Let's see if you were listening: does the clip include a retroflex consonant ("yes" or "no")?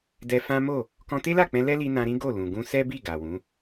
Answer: no